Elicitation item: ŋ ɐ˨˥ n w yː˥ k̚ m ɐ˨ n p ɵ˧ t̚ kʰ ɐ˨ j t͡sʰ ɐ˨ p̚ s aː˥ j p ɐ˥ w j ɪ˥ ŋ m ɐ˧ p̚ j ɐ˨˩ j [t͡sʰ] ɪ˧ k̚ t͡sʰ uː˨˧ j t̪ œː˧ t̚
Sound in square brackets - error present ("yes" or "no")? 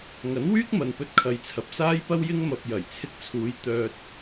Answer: no